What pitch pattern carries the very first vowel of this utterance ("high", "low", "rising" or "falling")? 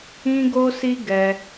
high